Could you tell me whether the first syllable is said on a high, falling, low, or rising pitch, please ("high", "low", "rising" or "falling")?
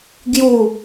falling